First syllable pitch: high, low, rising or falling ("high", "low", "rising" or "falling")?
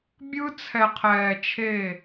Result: high